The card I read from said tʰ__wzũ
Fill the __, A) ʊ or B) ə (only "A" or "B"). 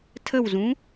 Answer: B